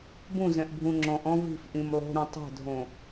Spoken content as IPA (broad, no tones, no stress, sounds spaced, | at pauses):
b ũ z ɛ̃ ʔ bʱ ũ ŋ͡ǁ ɔ̃ ʔ ɔ̃ v i̤ f ʔ ĩ m lˠ o̤ ɾ ũ tˤ ɛ̤ dʱ õ